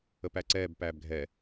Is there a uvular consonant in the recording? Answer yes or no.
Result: no